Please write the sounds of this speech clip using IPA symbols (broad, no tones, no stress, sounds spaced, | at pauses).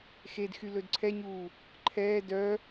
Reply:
x e d x y l ɵ d ǀʰ ɛ ɲ uː | ǃʰ ɛː d œ